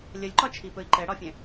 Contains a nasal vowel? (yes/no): yes